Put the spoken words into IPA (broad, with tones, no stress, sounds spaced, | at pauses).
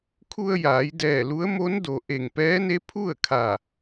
kʰ u˧ ə̯ j aː˩˧ j d ɛː˧˩ l u˧˥ ə̯ m o˧˥ n d o˩ ʔ e˧˩ ŋ p ɛː˧˥ n e˧˥ pʰ u˥˨ ə̯ kʰ a˧˩